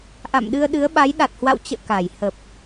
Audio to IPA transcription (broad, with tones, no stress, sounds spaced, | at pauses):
ʔ a̰˧˨ m ɗ ɨ˧ ə̯ ɗ ɨ˨˦ ə̯ ɓ a˨˦ j ɗ a˨˩ t̚ h w a̰˧˨ w t͡ɕ ə̰ː˧˨ k a˧˩ j h ə˨˩ p̚